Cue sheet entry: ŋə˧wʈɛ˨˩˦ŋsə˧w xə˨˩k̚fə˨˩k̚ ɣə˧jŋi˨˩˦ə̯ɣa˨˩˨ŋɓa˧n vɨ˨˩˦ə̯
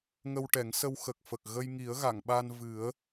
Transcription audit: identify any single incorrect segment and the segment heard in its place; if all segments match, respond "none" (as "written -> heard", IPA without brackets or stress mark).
none